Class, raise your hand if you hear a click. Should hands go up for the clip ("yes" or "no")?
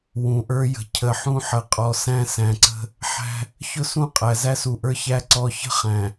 yes